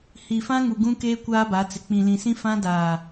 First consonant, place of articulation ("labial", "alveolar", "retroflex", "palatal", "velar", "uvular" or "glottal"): glottal